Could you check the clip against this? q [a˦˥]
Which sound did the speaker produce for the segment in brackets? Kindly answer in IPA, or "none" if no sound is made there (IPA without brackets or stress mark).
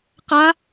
a˦˥